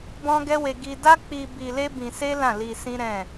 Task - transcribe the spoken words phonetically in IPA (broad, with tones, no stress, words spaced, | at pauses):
bɔ̃˦ɡɛ˦we˧ ɡi˧da˦k͡pi˧ bi˧le˦bĩ˧se˦ lã˦˨li˧sĩ˦ɾɛ̃˦˨